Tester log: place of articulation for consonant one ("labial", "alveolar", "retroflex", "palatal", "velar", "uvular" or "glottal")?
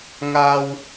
velar